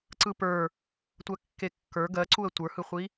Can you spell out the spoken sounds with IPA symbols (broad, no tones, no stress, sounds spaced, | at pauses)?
ǀ ɯ p ə˞ | tʷ ɜ kː e kː ə˞ ɡ ɜ ǀ u ə̯ tʷ ə˞ h ɯ χʷ i